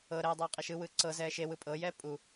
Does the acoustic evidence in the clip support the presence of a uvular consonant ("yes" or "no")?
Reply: yes